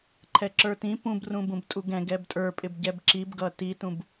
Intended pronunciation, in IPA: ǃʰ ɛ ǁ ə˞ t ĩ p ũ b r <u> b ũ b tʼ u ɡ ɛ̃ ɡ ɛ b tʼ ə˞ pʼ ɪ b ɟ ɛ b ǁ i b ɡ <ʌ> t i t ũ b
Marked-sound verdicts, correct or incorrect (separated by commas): incorrect, correct